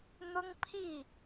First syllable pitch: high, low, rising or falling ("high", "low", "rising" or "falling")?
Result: high